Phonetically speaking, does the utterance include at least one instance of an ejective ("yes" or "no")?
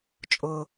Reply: yes